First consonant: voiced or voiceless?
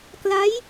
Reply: voiceless